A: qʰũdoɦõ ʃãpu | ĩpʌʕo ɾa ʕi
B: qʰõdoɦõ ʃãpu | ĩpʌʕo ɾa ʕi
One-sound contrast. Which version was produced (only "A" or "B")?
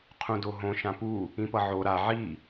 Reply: A